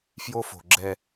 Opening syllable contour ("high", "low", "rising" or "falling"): high